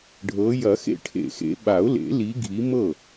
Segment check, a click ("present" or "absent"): absent